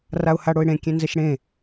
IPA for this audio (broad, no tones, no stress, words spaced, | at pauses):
raʊ̯haɽoɪ̯ɽẽ kʲẽnzɛʃɽẽ